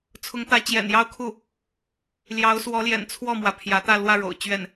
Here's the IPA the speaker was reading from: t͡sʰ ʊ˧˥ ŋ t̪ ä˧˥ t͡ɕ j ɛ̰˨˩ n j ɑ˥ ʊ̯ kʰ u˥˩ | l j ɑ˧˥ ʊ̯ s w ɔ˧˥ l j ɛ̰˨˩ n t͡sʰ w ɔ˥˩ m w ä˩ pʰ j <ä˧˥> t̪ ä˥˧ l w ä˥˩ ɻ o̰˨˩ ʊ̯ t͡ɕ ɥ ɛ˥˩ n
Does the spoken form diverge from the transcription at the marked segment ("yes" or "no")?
no